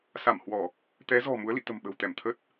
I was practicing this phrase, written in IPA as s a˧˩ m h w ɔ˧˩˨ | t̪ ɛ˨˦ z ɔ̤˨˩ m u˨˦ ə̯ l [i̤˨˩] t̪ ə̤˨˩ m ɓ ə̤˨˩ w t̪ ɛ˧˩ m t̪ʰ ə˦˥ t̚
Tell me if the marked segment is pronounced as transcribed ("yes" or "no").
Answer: no